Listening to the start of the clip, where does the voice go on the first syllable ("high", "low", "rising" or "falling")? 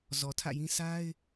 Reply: low